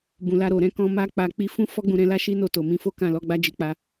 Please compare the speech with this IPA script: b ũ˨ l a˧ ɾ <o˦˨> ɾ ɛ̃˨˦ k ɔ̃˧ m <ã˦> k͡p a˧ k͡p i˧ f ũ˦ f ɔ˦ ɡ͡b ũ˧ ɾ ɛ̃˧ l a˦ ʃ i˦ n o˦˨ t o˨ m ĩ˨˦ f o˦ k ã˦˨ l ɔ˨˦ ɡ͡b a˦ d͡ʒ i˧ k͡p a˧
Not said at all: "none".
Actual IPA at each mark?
o˨, a˦

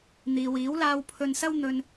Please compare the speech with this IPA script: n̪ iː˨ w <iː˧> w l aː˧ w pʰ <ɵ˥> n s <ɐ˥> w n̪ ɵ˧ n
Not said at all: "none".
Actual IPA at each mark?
iː˨˥, ɵ˧, ɐ˥

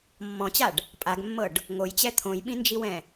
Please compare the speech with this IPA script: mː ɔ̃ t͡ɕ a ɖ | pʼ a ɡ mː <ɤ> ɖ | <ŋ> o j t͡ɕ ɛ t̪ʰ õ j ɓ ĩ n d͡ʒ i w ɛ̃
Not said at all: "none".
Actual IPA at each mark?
ɤ, ŋ

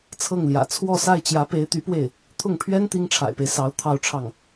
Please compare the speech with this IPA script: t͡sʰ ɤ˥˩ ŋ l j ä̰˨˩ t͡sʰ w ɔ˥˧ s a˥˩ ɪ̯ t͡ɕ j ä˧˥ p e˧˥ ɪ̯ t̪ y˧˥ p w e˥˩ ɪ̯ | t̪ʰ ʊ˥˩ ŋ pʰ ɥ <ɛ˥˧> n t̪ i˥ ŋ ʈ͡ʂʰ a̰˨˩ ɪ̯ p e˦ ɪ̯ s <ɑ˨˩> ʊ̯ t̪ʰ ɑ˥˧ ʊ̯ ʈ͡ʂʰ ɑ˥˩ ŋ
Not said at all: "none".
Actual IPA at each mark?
ɛ˥, ɑ˧˥

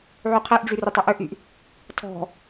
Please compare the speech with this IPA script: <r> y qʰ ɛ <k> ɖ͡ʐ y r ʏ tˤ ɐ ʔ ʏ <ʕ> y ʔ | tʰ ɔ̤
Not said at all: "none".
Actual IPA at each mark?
ʕ, ʔ, ʔ

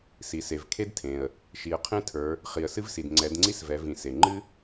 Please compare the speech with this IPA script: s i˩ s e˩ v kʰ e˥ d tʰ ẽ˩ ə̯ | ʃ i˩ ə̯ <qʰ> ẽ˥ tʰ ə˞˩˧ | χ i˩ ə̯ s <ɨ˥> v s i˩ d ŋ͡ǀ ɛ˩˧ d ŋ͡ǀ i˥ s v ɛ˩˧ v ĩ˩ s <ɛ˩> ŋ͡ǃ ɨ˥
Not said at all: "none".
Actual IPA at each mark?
qʰ, ɨ˥, e˩

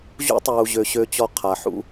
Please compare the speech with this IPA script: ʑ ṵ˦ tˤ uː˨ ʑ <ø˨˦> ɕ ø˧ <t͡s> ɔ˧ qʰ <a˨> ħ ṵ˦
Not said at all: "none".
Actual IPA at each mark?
ø˨, t͡ɕ, a˨

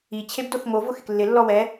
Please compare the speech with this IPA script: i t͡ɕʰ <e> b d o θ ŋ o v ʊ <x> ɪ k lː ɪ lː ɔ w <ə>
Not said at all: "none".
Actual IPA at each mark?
e, x, ɛ

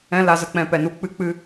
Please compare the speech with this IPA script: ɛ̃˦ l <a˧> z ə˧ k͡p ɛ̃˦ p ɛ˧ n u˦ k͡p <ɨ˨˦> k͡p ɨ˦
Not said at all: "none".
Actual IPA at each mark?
a˧, ɨ˦

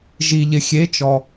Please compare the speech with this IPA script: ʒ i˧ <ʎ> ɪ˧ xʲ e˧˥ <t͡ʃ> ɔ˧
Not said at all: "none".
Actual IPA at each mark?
ʎ, t͡ʃ

